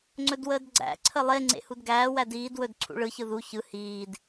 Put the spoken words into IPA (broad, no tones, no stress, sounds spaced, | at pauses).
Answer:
ŋ͡ǀ ɵ d w əː d ɡ͡ǀ æ̰ ǀʰ ə lˠ e ŋ͡ǀ ḛ h u d ɡ æː w æ d iː d w ɵ d ǀʰ ṵ ɭ ɯ ç ɯ ð u ç ɯ h iː d